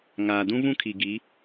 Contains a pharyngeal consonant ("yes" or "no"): no